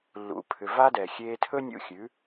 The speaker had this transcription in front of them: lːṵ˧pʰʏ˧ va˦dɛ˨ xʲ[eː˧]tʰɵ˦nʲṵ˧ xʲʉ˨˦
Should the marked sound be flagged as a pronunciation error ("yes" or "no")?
no